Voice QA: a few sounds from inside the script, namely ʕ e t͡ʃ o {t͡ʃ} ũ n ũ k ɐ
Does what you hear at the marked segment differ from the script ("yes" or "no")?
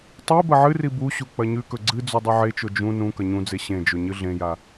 yes